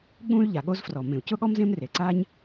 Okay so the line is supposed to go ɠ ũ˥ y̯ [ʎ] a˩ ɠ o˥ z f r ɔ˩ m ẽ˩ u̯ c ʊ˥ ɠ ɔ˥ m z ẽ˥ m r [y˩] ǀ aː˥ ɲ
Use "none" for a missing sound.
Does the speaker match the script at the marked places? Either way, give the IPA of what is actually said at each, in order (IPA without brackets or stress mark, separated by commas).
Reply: ʎ, e˩